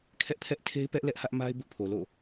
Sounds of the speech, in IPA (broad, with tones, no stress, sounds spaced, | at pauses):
kʰ ɛ˦ ʔ pʰ ɛ˦ ʔ tʰ e˦ ɪ̯ p ɛ˦ ʔ l ɛ˦ ʔ h ä˦ ʔ m a˦ ɪ̯ b ʊ˦ ʔ pʰ o˨ l o̰˦˨